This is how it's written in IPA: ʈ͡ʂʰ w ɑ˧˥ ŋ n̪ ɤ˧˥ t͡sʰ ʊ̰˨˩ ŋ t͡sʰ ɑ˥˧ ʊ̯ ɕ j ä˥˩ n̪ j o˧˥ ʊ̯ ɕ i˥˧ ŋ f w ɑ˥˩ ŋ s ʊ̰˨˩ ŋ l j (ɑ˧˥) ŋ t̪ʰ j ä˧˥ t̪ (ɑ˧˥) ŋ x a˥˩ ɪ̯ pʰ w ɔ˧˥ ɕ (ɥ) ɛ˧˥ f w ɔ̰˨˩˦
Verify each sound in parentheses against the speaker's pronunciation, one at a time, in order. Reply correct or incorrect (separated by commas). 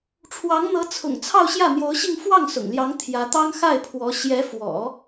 correct, incorrect, incorrect